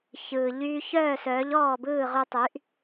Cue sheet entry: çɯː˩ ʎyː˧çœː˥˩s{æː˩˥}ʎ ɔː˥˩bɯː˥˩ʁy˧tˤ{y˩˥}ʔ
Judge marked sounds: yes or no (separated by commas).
no, yes